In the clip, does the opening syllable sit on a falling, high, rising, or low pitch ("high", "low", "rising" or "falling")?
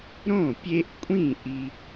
falling